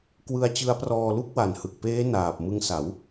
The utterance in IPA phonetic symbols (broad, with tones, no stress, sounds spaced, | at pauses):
k w ɯ˧ a̯ t͡ɕ ɯ˦˥ a̯ p r ɔː˧ l u˥˩ k̚ w a˨˩ n h ɯ˨˩ k̚ p eː˦˥ n aː˨˩ p̚ m ɯ˧ ŋ s a˩˦ w